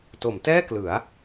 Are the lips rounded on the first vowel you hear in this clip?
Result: yes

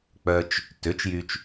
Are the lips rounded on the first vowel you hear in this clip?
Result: yes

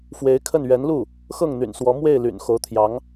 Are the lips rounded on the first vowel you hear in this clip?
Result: no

